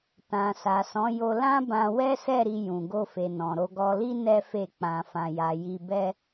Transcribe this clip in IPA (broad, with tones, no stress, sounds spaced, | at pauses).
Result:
t ã˨ s a˨ s ɔ̃˨˦ j o˧ l ã˦ b ã˧ w ɛ˦ s ɛ˦˨ ɾ i˧ j ũ˨ ɡ o˧ f e˨ n ɔ̃˨ ɾ o˧ ɡ ɔ˧ l i˦ n ɛ˦ f e˦˨ k͡p ã˧ f ã˧ j a˧ j i˧ b ɛ˦